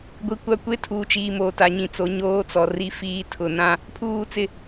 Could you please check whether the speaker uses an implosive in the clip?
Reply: no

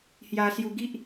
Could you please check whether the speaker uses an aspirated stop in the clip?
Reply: no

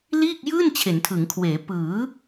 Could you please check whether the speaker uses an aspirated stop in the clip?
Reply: yes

